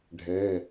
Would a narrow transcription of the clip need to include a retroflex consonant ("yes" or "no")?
yes